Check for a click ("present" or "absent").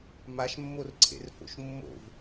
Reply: present